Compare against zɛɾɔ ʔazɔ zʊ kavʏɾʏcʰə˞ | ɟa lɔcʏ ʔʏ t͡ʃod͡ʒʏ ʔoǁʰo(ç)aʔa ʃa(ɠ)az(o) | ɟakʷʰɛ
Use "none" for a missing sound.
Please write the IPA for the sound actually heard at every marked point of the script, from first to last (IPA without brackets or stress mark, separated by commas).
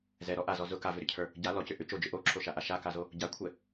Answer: ʃ, k, o